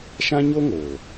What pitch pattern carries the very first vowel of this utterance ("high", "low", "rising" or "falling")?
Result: high